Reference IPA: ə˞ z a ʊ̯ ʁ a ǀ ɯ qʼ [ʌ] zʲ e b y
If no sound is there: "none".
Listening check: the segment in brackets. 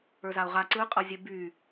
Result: ʌ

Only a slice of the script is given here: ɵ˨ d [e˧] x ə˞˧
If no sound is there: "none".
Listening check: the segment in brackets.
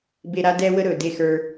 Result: e˦˨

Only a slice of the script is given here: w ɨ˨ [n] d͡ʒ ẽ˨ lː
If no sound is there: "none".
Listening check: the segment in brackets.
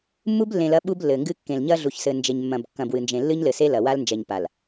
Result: n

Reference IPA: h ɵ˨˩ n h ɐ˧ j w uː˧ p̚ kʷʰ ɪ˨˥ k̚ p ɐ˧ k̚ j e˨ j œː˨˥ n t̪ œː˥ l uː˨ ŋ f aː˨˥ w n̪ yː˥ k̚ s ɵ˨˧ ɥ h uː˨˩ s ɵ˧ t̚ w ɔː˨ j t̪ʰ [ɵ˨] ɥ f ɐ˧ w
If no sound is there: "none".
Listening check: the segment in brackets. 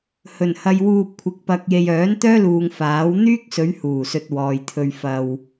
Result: ɵ˧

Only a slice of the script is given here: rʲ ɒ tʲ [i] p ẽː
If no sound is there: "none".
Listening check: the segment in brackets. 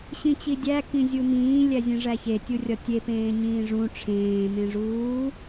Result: e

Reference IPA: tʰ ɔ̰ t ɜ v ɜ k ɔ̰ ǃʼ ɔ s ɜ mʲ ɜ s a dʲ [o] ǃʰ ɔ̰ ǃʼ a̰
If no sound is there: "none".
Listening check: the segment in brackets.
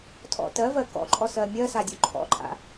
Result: o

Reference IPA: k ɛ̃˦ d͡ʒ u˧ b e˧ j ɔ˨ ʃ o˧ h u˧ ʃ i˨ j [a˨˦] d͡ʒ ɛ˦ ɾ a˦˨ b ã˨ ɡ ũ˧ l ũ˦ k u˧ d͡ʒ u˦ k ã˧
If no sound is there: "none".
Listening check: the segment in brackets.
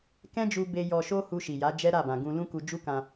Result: a˨˦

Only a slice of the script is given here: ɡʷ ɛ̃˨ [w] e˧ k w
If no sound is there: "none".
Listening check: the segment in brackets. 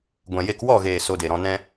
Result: j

